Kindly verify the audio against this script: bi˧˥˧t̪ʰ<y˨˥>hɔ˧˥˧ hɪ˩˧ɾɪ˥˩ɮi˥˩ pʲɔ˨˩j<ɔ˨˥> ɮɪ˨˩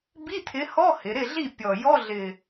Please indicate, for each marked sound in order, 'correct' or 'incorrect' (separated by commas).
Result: incorrect, incorrect